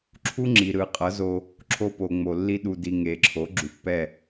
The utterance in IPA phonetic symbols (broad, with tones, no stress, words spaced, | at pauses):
ǁʰu˦ŋ͡ǁi˨ ɾɯ˨qʼʌ˨˦zo˧ | ǁʰo˦po˨ ŋ͡mo˨ lːi˧ɗu˨di˨ ŋe˨ǁʰo˨˦ ɡ͡ǁu˨pːɛ˦˨